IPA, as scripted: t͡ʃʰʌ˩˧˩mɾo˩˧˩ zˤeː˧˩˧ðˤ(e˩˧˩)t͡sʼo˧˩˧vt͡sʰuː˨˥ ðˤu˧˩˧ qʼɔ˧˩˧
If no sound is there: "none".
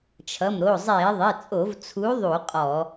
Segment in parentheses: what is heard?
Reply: e˩˧˩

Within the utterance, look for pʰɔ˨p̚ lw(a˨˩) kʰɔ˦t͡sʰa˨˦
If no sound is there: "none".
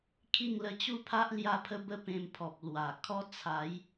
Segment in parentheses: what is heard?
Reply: a˨˩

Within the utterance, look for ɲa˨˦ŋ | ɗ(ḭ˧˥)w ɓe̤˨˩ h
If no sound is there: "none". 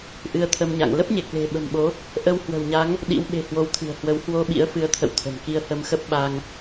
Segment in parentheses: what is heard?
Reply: ḭ˧˥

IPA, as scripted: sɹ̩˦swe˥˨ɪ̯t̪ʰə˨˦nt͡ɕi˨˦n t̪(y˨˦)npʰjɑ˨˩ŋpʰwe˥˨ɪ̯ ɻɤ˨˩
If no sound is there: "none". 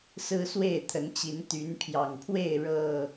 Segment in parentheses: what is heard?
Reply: y˨˦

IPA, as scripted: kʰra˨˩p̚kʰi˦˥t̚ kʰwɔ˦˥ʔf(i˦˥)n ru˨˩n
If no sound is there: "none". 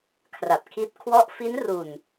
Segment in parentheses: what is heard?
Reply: i˦˥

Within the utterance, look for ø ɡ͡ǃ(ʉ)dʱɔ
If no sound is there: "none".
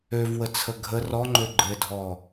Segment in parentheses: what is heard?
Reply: ɘ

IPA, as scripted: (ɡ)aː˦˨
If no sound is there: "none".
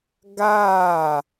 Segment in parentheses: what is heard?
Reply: ɡ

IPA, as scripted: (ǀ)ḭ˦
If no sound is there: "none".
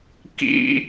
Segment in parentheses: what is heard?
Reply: k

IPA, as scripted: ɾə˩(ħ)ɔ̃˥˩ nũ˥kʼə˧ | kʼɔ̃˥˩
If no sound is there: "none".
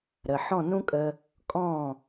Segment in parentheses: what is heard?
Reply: ħ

